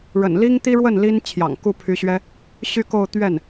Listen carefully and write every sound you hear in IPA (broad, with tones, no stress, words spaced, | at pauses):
ɻə̰˨˩n li˥ŋt̪i˥ɻwə˥˩n li˥n t͡ɕʰjɑ̰˨˩ŋku˥˩pʰy˧˥ɕɥɛ˥ | ɕy˥˧ko˥˧ʊ̯ t̪ɥɛ˥˩n